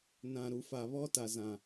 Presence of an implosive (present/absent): absent